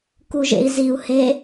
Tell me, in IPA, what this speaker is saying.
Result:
k u ʒ ḛ i̯ z i u̯ h e

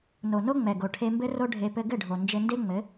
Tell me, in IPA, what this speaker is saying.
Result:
n o˨ n o˦ ŋ͡m ɛ˨ ɡ o˨ ʈʰ e˧ m b ɘ˦ r o˦ ɖʱ e˧ p ɘ˧ ɡ ɘ˦˨ ɖʱ o˨ n d͡ʒ ɘ˧ n d e˦ ŋ͡m ɘ˨˦

